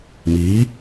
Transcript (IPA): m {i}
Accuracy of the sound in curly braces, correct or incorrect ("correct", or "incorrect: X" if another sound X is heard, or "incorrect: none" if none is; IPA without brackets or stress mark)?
incorrect: iː